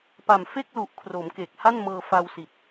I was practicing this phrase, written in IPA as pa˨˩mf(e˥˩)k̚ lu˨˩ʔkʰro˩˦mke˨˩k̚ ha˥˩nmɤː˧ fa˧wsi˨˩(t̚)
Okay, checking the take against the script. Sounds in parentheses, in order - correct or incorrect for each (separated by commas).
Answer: correct, correct